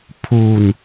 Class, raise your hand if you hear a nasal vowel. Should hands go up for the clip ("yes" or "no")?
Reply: no